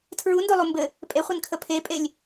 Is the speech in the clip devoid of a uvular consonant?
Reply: no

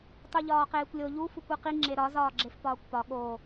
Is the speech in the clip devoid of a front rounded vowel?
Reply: yes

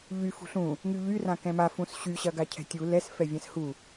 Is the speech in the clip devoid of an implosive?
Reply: yes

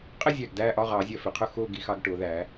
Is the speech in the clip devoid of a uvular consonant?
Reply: no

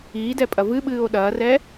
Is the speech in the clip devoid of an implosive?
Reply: no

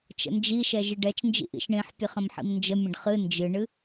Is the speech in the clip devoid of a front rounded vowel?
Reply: yes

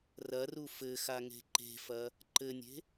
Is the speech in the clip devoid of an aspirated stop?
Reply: yes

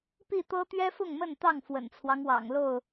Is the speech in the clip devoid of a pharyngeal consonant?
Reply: yes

